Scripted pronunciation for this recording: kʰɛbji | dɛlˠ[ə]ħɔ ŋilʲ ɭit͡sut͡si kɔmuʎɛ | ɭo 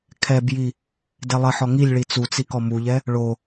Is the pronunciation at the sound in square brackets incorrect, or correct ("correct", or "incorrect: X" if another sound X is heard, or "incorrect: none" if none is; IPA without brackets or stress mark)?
correct